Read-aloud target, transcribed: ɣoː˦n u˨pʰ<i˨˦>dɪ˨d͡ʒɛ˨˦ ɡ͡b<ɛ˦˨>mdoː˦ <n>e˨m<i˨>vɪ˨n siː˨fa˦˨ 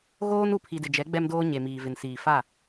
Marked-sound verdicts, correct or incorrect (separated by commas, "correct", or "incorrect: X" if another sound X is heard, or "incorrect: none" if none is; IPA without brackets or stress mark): incorrect: i˨, incorrect: ɛ˦, incorrect: ɲ, incorrect: iː˨